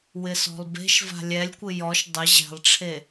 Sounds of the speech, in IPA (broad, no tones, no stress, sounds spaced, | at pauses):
w ɪ s ɔ̤ lˠ b e̤ ʃ v a̤ lʲ ɛ lʲ kʷ ɪ j ɔ ʃ dˤ ɪ ʑ ɛ̤ lˠ ʈ͡ʂʰ e